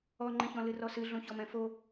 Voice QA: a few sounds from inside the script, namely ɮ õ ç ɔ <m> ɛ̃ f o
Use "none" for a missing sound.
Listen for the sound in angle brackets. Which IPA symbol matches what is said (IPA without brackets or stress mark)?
m